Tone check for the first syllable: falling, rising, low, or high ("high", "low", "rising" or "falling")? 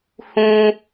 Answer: high